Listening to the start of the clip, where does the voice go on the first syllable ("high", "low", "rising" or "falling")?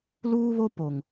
high